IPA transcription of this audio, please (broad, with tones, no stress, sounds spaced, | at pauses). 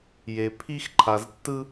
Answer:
j e˨ pʰ i˥ x ǃʰ a˨ z tː ɯ˥